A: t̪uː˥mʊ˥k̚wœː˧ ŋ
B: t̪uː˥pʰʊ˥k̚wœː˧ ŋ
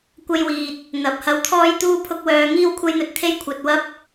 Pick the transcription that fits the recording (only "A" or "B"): B